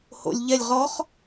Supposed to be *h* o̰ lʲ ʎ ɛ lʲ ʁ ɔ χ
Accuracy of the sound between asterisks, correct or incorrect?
correct